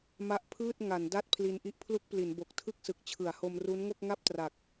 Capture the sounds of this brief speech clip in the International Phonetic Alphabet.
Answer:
ma˦˥ʔpʰɯː˥˩t̚ ŋa˩˦nda˥˩t̚ pʰli˧nʔi˥˩ʔpʰlu˥˩k̚pli˩˦n bo˨˩k̚tʰɯ˥˩k̚sɯ˨˩k̚ t͡ɕʰɯ˩˦a̯ho˧mru˦˥nŋo˥˩k̚ ŋa˥˩p̚ tra˨˩k̚

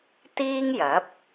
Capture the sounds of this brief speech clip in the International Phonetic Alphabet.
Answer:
t̪iː˥ŋjɐ˨˥p̚

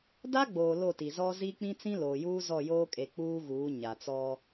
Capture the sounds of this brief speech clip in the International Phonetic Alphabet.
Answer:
da˦ɡ͡boː˨ lo˦˨ti˨ zɔ˦zi˦ k͡pĩ˦t͡sĩ˦loː˨juː˦ zɔ˦˨joː˦kʼe˨ k͡puː˦ɣuː˨˦ ɲa˨t͡sɔ˦

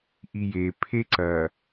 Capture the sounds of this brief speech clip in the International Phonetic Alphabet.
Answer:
ʔije pʰeǀɐ

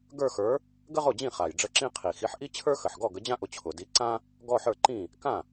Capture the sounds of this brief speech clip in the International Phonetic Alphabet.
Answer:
ɡə˞˥˧xə˞˨˥ | ɡə˥ʁʊ˥˩d͡ʑĩ˥˩ χa˨˩jɖ͡ʐə˥˩ǁĩ˥ qʰi˨˩xi˨˥ħʔi˥ t͡ɕʰə˞˥xə˨˩ħɡɔ˥˩ ɡə˨˥d͡ʑã˥ʔʊ˨˥ t͡ɕʰʊ˨˩di˨˥ǀã˥ | ɡɔ˥˧ħə˞˥˩ǃĩ˥˩ | kã˥˩

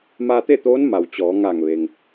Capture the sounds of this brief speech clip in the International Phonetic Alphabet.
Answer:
maː˧t̪e˥˨t̪oː˧˥n ma˩wt͡ɕɔː˩˧ ŋa˧˩ŋʋe˩ŋ

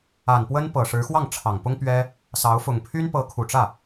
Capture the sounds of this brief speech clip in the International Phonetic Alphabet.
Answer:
a˨˩npwə˥n pɤ˨˩ʂɻ̩˧˥ xwɑ˥˩ŋʈ͡ʂʰɑ˨˩ŋpʊ˥ŋ pɥɛ˥ | sɑ˧˥ʊ̯ fʊ˨˩ŋpʰy˥npɤ˧˥ kʰu˨˩ʈ͡ʂä˥˩

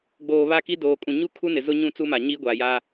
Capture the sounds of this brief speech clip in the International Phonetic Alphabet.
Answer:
ɡ͡boː˨ βa˦ki˦ doː˨ kʼũ˨ɲu˦kʰu˦nɪ˨ zʊ˦ ɲũ˦t͡su˦ma˨ ɲiː˦ɡʷaː˨ja˦

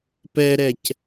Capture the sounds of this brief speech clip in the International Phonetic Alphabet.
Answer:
pɛɾɛc

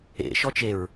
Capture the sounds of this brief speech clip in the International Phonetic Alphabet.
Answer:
ḛ ʃɔt͡ʃeɹ

